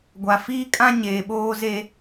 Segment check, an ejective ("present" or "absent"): present